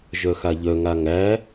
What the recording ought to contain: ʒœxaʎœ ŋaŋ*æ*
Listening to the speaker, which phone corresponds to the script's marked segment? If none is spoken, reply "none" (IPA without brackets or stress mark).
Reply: æ